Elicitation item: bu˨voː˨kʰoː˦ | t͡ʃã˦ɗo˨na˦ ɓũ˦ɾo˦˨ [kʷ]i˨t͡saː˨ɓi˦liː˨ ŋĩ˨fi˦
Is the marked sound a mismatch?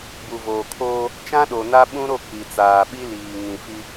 yes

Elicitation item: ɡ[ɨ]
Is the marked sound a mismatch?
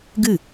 no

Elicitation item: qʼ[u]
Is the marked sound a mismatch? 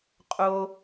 yes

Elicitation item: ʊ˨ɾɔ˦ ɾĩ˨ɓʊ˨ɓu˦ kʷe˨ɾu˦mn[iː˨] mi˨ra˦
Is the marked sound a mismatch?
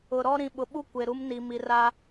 yes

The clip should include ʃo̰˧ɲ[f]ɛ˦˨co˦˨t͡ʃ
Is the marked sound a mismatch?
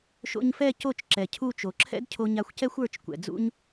no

